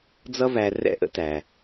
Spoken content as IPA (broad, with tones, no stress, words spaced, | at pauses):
d͡zʌ˥væ˧ rɛ̰˥ʔə̰˥tæ˩